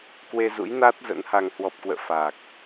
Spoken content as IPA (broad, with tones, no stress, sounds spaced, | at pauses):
k w e˧ z ṵ˧˥ j n a˦˥ t̚ z ə̰˧˥ n h a˧ ŋ h w ɔ˨˩ p̚ k w ə̰ː˧˨ f a˨˩ k̚